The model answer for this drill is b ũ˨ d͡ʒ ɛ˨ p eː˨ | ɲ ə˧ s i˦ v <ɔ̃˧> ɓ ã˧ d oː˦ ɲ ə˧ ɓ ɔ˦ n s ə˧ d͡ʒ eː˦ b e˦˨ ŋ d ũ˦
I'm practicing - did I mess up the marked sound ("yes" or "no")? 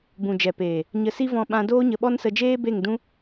no